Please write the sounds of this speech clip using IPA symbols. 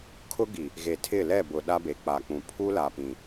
kʰʊ˦ɡi˨ | ɣe˨tʰɪ˦˨ lɛ˦˨bʊ˨ ɗa˦be˨k͡pa˨k͡pũ˨ pʰu˦ la˨pĩ˨

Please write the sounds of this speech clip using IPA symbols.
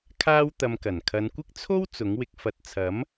kʰaː˥w t̪ɐ˧mkɐ˨˩n kʰɐ˨˧nkʷɪ˥k̚ t͡sʰo˥w t͡sʊ˨˥ŋwɪ˧k̚ fɐ˨t̚t͡sʰɐ˨˥m

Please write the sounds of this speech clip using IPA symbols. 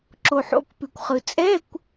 ǁo˩ħo̰˩˧˩kpʉ˩kʷχɯ˩ t͡sʼɛ˧˥˧kʷ

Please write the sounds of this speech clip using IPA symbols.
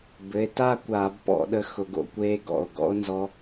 bɘ˩˧˩e̯ ta˥˨kʷaː˧˩˧b pɔ̰˧˩˧ɗə˧ xʊ˧˩˧ɡo̰˧kʷeː˦˥ɡɔ̰˩˧˩o̯ ɡɔ̰˦˥o̯nzɔ˦˥

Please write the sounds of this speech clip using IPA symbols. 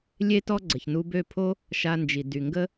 lʲe˦tɔ˦ ɡ͡ǀə˨çnu˧bø˦˨pʰo˦ | ʃa˧nd͡ʒi˨ dy˨ ŋɡə˦

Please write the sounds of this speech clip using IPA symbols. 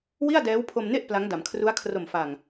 wi˥˩a̯dɛː˦˥wpʰo˧mne˥˩ʔ pla˦˥ŋda˩˦m kʰru˦˥a̯kʰro˨˩mfa˨˩ŋ

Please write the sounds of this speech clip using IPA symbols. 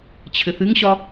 t͡ɕʰɘθɨŋɕɒ

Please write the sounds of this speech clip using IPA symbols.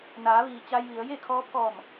naː˩˧ʋiː˩ t͡ɕa˧jʋi˩˧ə̯ je˥˨kʰɔː˧˥ pʰɔː˧˩m

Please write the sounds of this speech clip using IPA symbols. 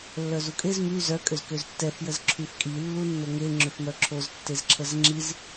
lːœzukʼez my zœ kʼøzkøztːɛf jəzǁʰyfkʼi lːunːoŋe ŋ͡ǁøfmœǁʰoz tːezǁʰəzŋ͡ǁiz

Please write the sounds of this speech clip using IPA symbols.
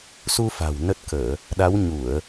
su˧ fa̤˨˩w nə˦˥t̚kəː˧˩˨ | ɗa˨˦wɲu˧˩˨ə̯

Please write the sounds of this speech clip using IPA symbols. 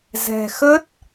zɛ̤˨˩ xə˦˥t̚

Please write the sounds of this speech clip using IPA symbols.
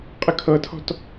qʼəkʰɤtʰɔ̤t

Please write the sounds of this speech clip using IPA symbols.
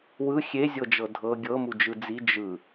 wɯ xʲezʲɤd͡ʒɤ dʱɤ ɡʲɤmu d͡ʒɯd͡zi d͡ʒɯ

